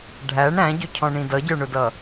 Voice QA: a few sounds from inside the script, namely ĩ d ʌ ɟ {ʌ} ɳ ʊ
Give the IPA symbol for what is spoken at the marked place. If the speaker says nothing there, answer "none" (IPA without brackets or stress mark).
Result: ə˞